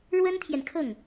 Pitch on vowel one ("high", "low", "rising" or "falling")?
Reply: high